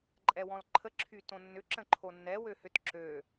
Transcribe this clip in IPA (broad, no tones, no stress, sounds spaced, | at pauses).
ǃʼ ɛ w ɔ̃ l ǃʰ ə ǁʰ y t õ nː ʏ ǁ ə̃ ǃʰ o nː ɛ w ø h ʏ t ǁ ø